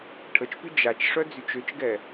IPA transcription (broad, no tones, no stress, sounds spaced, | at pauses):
ʈʰ ə t͡ʃ p y d͡ʒ a t͡ʃ ʂ œ d͡z y t͡ʃ ø t͡ʃ ɡ ɛ